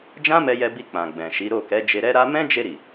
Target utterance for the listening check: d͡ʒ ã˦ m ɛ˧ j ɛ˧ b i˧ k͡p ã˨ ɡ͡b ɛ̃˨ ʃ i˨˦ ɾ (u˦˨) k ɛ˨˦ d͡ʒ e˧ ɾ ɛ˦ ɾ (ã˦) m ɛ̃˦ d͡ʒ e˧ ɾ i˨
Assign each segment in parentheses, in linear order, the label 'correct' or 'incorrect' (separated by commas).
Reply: incorrect, incorrect